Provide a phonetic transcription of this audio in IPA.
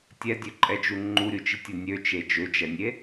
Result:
tʲ ɛ dʲ ø ǃʼ ɛ d͡ʒ u ŋ͡ǃ u ɾʲ u t͡ʃ i tʲ o nʲ ø t͡ʃ e d͡ʒ ø d͡ʒ ɛ nʲ e

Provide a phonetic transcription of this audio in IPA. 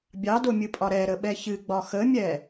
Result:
bʲ ɑ d o mʲ ɨ pʼ ɒ ɾ ɛ ɾ ə ɓ ɛ ç ɨ ɡ͡b ɒ x ə mʲ ɛ

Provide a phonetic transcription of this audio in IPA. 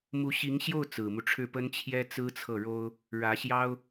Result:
m u˧˥ ɕ i˧˥ ŋ ɕ j o˥˩ ʊ̯ t͡s ɹ̩˨˩ m u˦ ʈ͡ʂʰ ɻ̩˥˩ p ə˥ n t͡ɕʰ j ɛ˥ t͡s ɹ̩˥ t͡sʰ ɤ˥˩ ɻ o˥ ʊ̯ | ɻ ä˧˥ ɕ j ɑ˥ ʊ̯

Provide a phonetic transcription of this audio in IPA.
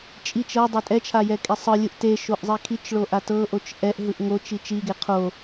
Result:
t͡ʃʼ i t͡ʃ ɤ dˤ e tʼ ɛ t͡ʃʰ a j ɛ kʼ e sˤ ɯ lʲ ɯ ʔ t e ʃ o ʔ zˤ i kʰ i t͡ʃ ɭ o ʔ a t ɤ ʔ o t͡ʃ ʔ ɛ ʔ ɦ ɯ ʔ ŋ o t͡ʃ i t͡ʃ i ɡ e qʰ o

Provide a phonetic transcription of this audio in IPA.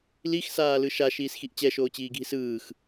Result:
l i x s aː l ɯ ʃ a ʃ iː s x i ʔ t͡ɕ ɛ ʃ oː t͡ɕ iː ɡʱ i s ɯː x

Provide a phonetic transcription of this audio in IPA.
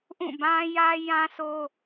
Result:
ʔ ũ˦˨ b ã˦ j ä˦ j ã˦ sʰ o˦

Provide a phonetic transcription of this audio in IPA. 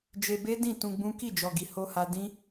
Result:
d͡ʒ e˧ b e˦ d ĩ˦˨ t ũ˧ ɡ͡b ũ˦ k i˦˨ d͡ʒ ɔ˨ ɡ i˨ h o˧ h a˧ d ĩ˦

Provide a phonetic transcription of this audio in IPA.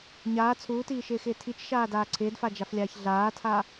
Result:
ɲ aː t͡sʰ uː t iː ʃ ɪː x ɪː tʰ i t͡ʃ ʃ aː d aː ǀʰ ɪː d f a d͡ʒ a f lʲ aː ç ɮ aː tʰ a

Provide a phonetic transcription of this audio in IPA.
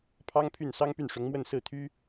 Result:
pʰ ɑ˥ ŋ pʰ y˥˩ n s ɑ˥ ŋ p y˥˩ n ʂ ʊ˧˥ ŋ m w ə˥˧ n s ɹ̩˥˩ t̪ʰ y˥

